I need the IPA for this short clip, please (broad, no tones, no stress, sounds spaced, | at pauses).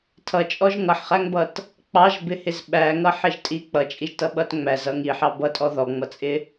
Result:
tʰ ʌ t͡ʃʼ ɔ ʒ ŋ ʌ ħ χ æ ŋ b ʌ t | k͡p ɑ ʒ b ɪ h ɪ z ɓ æ ŋ ʌ ħ ɪ ʒ tʼ i k͡p ʌ t͡ʃʼ i ʒ t ʌ ɓ ʌ t ŋ͡m æ z ʌ ŋ i ħ ɑ b ʌ tʼ ɔ ð ɔ ŋ͡m ʌ t͡sʼ ɪ